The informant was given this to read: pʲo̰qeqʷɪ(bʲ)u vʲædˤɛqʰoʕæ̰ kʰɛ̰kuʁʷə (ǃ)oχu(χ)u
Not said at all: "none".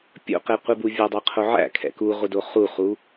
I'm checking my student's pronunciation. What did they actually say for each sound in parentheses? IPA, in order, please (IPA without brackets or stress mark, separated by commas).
b, d, χ